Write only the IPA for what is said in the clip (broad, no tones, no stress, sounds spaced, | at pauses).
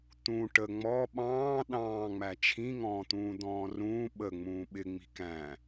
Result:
t̪ ũ ʈ ə ŋ͡m ɔ ɓ ɑ̃ː ɗ ɑ̃ː ŋ͡m æ t͡ʃʰ ĩ ŋ ɔ̃ː t̪ ũː d̪ ɔ̃ː r ũː ɓ ə ŋ͡m ũː ɓ ɪ ŋ͡m i̤ k æ̃